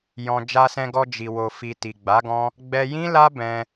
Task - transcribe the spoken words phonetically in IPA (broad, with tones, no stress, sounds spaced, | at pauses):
j ɔ̃˧ d͡ʒ a˧ s ɛ̃˧ ɡ ɔ˧ d͡ʒ i˨ w o˨ f i˨ t i˨ ɡ͡b a˨˦ ɡ ɔ̃˦ | ɡ͡b ɛ˧ j ĩ˦ l a˦ b ɛ̃˦